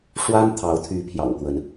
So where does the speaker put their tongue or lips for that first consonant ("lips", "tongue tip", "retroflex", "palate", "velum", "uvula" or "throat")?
retroflex